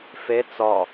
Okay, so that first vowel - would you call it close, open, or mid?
mid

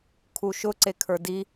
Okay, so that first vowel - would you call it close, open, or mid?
close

